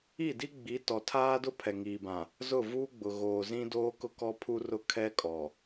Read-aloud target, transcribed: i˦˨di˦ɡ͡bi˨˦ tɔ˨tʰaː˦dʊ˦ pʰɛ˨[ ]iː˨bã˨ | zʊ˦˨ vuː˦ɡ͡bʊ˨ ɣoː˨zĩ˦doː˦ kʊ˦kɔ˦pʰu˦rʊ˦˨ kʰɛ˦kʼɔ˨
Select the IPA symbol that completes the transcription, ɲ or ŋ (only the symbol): ŋ